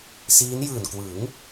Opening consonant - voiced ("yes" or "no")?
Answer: no